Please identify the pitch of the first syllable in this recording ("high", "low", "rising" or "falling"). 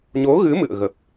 rising